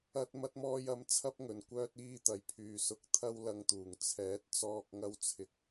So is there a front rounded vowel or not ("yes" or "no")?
yes